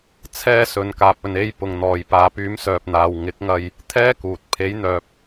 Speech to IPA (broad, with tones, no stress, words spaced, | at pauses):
t͡sʰɛː˧sɵ˨nkaː˨p̚ ɵ˨ne˧j pʊ˨ŋn̪ɔː˨j paː˨pyː˨˥msœː˨p̚n̪aː˨w ŋɪ˨˥k̚ŋɐ˧j | t̪ʰɛː˥kuː˨t̚ pʰe˨˥jn̪œː˨p̚